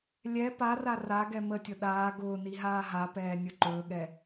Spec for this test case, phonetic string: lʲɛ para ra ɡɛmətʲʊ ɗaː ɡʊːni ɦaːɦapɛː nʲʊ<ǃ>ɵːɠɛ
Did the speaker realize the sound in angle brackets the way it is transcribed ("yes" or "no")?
yes